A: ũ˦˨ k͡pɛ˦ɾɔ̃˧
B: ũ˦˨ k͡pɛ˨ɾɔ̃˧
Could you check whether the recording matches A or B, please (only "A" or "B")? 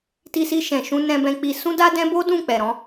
B